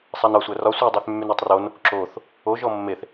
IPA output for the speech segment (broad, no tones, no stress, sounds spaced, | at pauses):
sˤ æ n ɒ sʷ æ r ɒ sʷ e dˤ y θ mː y n e tˤ r o n | ǁ o θ | o ʒ ɔ mː e θ